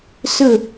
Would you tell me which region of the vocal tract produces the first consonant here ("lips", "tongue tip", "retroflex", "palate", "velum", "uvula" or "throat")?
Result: tongue tip